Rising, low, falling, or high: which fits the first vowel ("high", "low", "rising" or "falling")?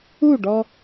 falling